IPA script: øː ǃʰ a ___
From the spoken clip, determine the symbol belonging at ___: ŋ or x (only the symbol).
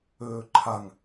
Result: ŋ